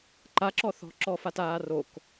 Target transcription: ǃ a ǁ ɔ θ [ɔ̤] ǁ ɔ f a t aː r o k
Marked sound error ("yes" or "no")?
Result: no